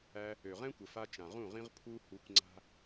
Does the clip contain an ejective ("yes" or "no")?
no